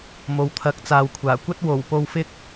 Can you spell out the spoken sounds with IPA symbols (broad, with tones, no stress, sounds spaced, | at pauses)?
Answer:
m o˨ w t̪ʰ ɐ˨˥ k̚ t͡s aː˨ w kʷʰ aː˨˩ kʷ ɐ˥ t̚ w o˨˩ w p o˧ w f ɪ˥ k̚